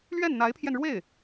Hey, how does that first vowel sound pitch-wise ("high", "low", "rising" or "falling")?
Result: falling